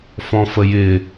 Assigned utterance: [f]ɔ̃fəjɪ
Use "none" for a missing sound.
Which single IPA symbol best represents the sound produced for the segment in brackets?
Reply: f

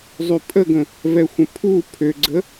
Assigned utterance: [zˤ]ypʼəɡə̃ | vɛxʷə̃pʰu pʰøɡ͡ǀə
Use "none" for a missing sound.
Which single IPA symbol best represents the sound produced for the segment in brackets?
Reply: zˤ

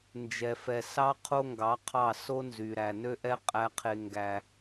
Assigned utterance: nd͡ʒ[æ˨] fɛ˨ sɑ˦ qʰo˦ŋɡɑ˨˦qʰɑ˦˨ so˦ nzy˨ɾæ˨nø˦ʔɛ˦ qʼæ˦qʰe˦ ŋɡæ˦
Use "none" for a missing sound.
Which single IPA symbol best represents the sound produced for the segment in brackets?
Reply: ɛ˨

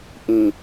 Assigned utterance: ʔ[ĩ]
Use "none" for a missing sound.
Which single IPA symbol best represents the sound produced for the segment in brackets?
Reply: ĩ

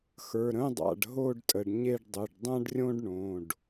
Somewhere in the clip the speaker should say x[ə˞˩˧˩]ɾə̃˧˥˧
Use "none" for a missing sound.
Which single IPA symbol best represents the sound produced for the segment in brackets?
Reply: ə˞˩˧˩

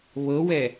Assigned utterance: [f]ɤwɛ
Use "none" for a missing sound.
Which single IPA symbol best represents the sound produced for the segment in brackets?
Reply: β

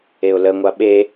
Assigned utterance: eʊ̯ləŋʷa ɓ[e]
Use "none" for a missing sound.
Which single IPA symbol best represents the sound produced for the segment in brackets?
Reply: e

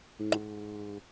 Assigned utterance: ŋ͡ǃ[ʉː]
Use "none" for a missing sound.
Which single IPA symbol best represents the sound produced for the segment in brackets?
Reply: ʊː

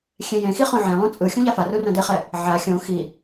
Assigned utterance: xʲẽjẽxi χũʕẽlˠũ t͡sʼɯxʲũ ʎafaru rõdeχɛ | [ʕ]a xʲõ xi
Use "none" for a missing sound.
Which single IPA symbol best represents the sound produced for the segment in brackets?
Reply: ʕ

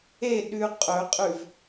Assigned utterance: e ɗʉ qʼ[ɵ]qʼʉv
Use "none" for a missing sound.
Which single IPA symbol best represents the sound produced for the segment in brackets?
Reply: ɵ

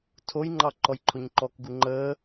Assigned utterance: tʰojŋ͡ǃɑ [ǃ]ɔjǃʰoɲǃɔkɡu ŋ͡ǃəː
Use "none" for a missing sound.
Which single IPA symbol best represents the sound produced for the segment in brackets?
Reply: ǃ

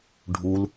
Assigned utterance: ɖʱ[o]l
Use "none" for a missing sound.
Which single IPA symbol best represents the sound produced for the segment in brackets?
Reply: u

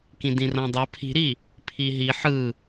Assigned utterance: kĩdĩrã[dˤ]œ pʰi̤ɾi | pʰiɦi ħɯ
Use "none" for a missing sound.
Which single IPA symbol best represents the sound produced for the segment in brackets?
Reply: dˤ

